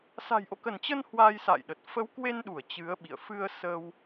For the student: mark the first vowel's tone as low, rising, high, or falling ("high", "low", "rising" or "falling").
low